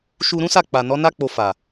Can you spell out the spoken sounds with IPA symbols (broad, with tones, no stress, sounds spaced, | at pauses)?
ʃ u˧ ɾ ũ˦ s a˦˨ k͡p a˨ n ɔ˨˦ n a˦ k͡p o˧ f a˨